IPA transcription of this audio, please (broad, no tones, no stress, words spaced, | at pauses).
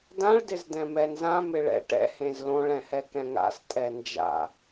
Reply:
dãɭ dɪzdɛ̃mɛnzã mɪɭɛ̰ ʈɛ̰ hẽzlõɭ ɛ̃hɛkɛ̃ŋa̰s tʼɛnd͡ʒa̰